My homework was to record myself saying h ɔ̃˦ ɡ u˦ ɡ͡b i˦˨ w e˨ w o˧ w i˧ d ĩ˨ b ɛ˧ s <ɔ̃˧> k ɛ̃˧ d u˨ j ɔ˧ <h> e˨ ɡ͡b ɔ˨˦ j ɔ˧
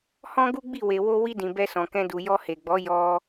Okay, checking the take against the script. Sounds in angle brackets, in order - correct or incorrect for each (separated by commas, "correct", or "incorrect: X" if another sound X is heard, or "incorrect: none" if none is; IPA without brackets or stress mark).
incorrect: ɔ̃˨, correct